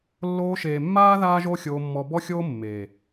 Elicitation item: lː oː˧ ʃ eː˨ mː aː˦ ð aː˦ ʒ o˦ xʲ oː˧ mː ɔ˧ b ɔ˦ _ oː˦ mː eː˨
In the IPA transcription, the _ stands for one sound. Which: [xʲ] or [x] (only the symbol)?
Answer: xʲ